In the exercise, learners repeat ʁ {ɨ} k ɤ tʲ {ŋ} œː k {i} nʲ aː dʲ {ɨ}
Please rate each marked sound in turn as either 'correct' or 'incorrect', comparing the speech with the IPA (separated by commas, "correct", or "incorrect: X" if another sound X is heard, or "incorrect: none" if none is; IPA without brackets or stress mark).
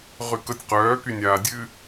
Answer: incorrect: y, incorrect: q, incorrect: y, correct